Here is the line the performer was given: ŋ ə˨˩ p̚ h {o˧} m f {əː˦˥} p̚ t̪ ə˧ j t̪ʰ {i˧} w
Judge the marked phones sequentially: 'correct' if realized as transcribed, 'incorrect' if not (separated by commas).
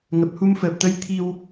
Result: incorrect, incorrect, correct